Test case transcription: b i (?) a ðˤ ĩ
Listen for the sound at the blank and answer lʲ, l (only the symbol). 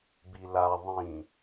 l